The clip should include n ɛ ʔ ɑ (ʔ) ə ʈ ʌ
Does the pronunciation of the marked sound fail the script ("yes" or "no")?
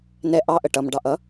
no